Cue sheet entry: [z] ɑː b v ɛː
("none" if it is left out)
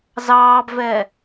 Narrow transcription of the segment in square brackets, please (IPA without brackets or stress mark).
z